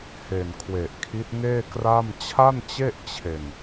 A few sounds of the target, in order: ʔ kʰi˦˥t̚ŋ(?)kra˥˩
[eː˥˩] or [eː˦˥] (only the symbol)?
eː˥˩